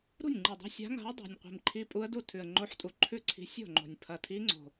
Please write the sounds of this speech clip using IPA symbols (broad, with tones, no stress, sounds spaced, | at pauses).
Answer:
ɾ ṳ˥˩ nʲ ŋ͡ǃ i˨˩ dˤ o̤˧˥ sʲ a̤˧˥ ŋ a̤˧˥ ə̯ dˤ ṳ˨˩ nʲ qʷ i̤˨˩ m ǃʰ i˧˥ pʼ u˧˥ ə̯ d u˥˩ tʰ ʉ˨˩ ə̯ ŋ͡ǃ o˧˥ ħ tʼ u˨˩ ǃʰ ʉ˥˩ ǀʰ i̤˧˥ sʲ o̤˥˩ ŋ͡ǃ o̤˨˩ nʲ pʰ ɐ˨˩ tʰ i˧˥ ŋ͡ǀ o̤˨˩